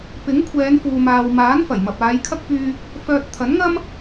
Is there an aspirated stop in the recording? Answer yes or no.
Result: yes